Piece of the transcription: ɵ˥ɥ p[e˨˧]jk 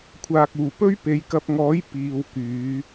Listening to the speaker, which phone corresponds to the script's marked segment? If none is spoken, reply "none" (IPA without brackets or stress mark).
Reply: e˨˧